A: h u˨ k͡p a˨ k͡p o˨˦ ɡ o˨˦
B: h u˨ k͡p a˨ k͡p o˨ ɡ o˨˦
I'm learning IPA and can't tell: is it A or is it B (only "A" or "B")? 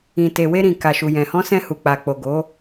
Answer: B